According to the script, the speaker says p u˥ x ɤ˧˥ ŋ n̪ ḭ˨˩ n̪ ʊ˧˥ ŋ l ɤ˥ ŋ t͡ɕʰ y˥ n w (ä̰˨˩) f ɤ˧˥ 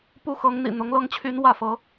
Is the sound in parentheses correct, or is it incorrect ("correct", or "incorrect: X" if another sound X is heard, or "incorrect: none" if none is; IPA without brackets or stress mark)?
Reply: incorrect: ä˥˩